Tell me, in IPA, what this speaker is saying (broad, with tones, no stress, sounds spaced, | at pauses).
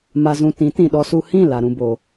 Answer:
m a˧ z ũ˧ t ĩ˨˦ t ĩ˨ ɗ ɔ˧ s u˧ h ĩ˦˨ l a˧ ɾ ũ˦ b o˧